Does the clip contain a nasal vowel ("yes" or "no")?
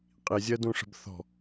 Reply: yes